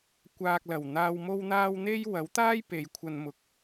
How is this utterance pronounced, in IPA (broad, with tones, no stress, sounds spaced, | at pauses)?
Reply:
kʷ aː˨ k̚ l ɐ˨˩ w n̪ aː˨ w m o˧ w n̪ aː˧ w n̪ e˥ j w ɐ˨˥ w t̪ aː˥ j p e˨˧ j kʷʰ ɐ˧ n m ʊ˧ k̚